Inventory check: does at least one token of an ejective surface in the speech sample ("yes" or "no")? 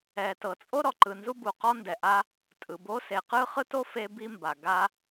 yes